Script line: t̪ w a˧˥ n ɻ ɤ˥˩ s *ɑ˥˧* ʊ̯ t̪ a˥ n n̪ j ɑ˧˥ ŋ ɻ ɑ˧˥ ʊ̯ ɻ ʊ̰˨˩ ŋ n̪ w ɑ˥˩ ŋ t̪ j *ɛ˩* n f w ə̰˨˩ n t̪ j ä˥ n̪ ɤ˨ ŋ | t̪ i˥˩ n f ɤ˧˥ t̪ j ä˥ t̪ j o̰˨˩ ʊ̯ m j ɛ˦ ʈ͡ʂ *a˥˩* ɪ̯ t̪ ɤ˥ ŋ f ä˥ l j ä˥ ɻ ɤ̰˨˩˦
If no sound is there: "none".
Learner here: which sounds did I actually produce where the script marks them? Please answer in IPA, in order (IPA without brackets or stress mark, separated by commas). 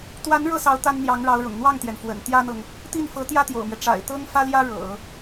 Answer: ɑ˧˥, ɛ˩, a̰˨˩